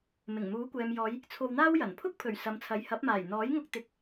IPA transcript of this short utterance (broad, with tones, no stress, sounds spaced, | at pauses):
m ɪ˨˩ ŋ m uː˨˥ kʷ ɛː˨ m j ɔː˨˧ j | t͡sʰ o˧ w n̪ aː˥ w j ɐ˨˩ n pʰ ʊ˥ k̚ pʰ ɵ˨˩ ɥ s ɐ˨ m t͡sʰ ɐ˨˥ j h ɐ˨˥ p̚ m aː˨˩ j n̪ ɔː˨˥ j ŋ ʊ˧ k̚ t̪ ɪ˨˥ k̚